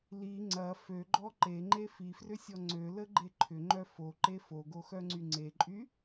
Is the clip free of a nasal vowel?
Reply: yes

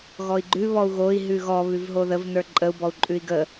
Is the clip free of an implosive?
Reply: yes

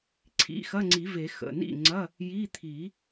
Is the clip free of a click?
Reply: no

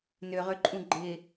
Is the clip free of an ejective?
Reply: no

